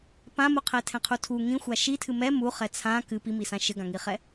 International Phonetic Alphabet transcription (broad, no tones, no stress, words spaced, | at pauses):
pãmu qʰɛtʰɛ̃qʰutʰu ŋĩxʷa ʃi tʰɨmɛ mu χɛt͡sʰã kɨ pimisã ʃɘɡãŋiχɛ